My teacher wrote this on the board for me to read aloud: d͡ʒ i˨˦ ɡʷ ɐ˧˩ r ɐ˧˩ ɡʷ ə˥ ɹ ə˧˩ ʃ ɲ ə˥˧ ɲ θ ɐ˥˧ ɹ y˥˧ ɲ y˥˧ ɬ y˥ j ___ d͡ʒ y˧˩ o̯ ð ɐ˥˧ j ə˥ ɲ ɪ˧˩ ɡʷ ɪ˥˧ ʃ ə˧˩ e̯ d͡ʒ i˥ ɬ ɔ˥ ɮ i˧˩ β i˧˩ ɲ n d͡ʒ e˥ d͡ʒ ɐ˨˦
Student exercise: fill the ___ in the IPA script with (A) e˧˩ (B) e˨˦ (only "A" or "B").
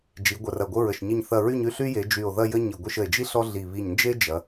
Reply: B